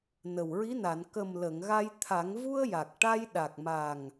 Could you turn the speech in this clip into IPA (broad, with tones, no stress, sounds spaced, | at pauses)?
n ə˨˩ w ɹ i˧˥ n a˨˩˨ n k ə˨˩ m l ə˨˩˨ ŋ ɣ a˧ j t̪ʰ a˨˩˦ ŋ v u˧ ə̯ j a˨˩ k̚ ʈ a˧ j ɗ a˨˩ k̚ m a˨˩ ŋ